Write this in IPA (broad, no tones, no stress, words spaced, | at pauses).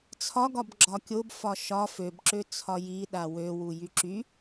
t͡sʰɒɡɒb ɡ͡ǁɒkʲob fɒʃɒ føbǁø t͡sʰɒji ɗawøwu jyǁy